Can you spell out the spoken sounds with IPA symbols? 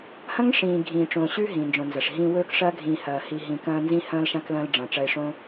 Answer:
h ɐ̃˦ ŋ ʂ ĩː˨ ɡʱ ĩː˨ ʈ͡ʂ õː˨ ɕ ʉ˦ ɦ ĩː˨ n d͡ʒ õ˨ n z ɐ˨ ʂ ɦ ĩː˦ w ɵː˦ k ʂ ɐː˦ ɡʱ ĩː˨ h ɐː˨ h i˨ ɦ ĩ˨ k ɐ̃ː˦ n z ĩ˦ h ɐ̃ː˦ l ʃ ã˦ k l ɐ̃ː˦ l ɖ͡ʐ ɐ̃ː˨ ʈ͡ʂ ɐ˦ ɪ̯ ʂ õ˦

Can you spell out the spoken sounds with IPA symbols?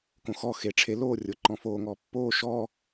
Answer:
k õ x ɔ x e ʈ͡ʂʰ e l oː rʲ ʊ ǃ ɔ̃ f oː ŋ ɔː pː oː ʃ ɔː

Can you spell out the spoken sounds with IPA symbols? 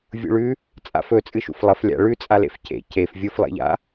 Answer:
vʲ ṵ ɭ ʉ | t͡sʼ a̰ f ɵ t͡sʼ ɨ ʃ ṵ f lˠ ɐ f lʲ a̰ ɭ ʉ t͡sʼ a l ḛ f c ḛ c e f vʲ u f lˠ ḛ ʎ a̰

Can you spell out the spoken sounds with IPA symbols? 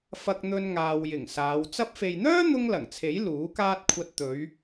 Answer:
f ɐ˧ k̚ n̪ ɵ˧ n ŋ aː˨ w j ɪ˨˩ ŋ s aː˨˧ w t͡s ɐ˧ p̚ f e˨ j n̪ œː˥ n̪ ʊ˥ ŋ l ɐ˨˩ ŋ t͡sʰ e˨˥ j l uː˨˥ k aː˥ t̚ kʷʰ ɐ˧ t̚ t̪ ɵ˨˧ ɥ

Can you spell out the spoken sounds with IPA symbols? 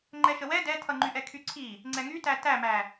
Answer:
ŋ͡ǃ ɛ ʃ ə w ɛ d ɛ tʰ ʌ ŋ͡ǃ y ʔ ɛ kʰ y ǀʰ i | ŋ͡ǀ ɛ ŋ y t æ t æ m æ

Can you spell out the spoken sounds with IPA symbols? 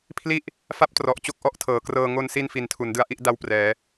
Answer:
pʰ l i˥˩ ʔ | f a˥˩ p̚ t r ɔ˨˩ ʔ t͡ɕ o˥˩ k̚ ʔ ɔ˦˥ ʔ tʰ ɤː˩˦ k r ɤː˧ ŋ o˧ n s i˧ n f i˩˦ n tʰ u˩˦ n d ɯ˦˥ a̯ ʔ i˥˩ ʔ d a˥˩ w p r ɛː˩˦

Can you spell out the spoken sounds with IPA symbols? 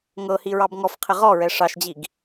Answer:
ŋ ɤ h i ɹ ɑ b ŋ ɔ f qʰ ɪ ʁ ɔ ɹ ɛ ʂ ɑ ʃ d͡ʑ i ɡ

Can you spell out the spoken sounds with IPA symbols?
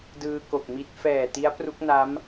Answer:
d ɯː˧ k o˨˩ k̚ m i˦˥ t̚ f ɛː˨˩ t i˦˥ a̯ p r u˦˥ k̚ n a˦˥ m

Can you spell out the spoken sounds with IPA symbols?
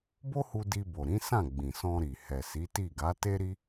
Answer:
b o˦ h u˧ d i˧ b o˨ ɾ ĩ˨˦ s ã˦˨ ɡ͡b ĩ˨ s ɔ̃˧ ɾ i˨ h ɛ˨ s i˨˦ t i˦˨ ɡ a˨˦ t e˦ ɾ i˦

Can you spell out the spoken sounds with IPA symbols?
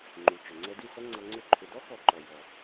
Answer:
ŋ͡ǃ u˨ t͡ʃ ʏ˨ ŋ͡ǀ ɛ˧ d i˦˨ s ʌ˦ ŋ͡ǀ ʌ˧ ŋ͡ǀ ʏ˦˨ ǃʰ ʏ˨ d ɔ˦ k ɔ˧ ǃ ɔ˨ j ɔ˨

